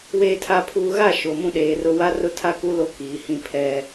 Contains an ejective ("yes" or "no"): no